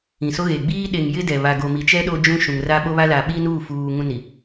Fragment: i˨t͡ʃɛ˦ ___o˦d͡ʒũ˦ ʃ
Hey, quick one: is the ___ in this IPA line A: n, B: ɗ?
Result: B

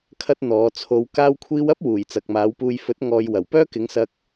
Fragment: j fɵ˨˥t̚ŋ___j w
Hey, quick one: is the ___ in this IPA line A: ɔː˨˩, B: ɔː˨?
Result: B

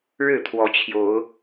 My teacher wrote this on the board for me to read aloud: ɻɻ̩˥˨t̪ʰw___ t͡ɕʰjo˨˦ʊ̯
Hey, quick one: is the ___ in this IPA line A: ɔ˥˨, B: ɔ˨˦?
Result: B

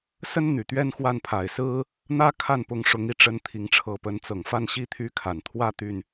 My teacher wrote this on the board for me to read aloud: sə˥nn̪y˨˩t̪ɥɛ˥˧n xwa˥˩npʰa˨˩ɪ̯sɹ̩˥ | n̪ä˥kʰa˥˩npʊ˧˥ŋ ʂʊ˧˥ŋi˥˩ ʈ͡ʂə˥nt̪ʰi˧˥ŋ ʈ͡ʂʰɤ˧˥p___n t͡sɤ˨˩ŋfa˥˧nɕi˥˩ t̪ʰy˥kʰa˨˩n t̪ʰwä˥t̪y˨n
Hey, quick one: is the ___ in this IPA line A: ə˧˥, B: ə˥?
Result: A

